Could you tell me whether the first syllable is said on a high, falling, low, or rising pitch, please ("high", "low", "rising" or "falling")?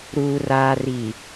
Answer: low